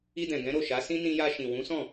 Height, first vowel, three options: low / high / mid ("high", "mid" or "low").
high